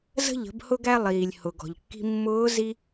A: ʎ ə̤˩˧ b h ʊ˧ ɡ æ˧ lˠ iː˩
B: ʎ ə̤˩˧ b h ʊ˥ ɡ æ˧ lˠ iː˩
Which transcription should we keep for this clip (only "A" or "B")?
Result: A